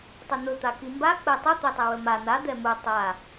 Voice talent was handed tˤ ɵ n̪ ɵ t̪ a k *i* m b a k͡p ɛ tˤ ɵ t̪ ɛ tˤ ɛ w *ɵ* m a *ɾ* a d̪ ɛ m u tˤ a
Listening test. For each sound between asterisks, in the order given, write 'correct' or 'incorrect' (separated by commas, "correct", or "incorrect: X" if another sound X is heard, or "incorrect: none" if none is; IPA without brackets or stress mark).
correct, correct, incorrect: n̪